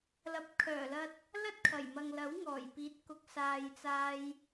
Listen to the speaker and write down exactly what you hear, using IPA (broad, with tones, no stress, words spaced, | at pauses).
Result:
lɐ˨p̚kʰœː˨˩lɐ˧t̚ | lɐ˥t̚kʰɐ˨˩jmɐ˨ŋlɐ˨˥w ŋɔː˨˩jpiː˨˥t̚kʊ˨˥k̚ saː˨jt͡saː˧j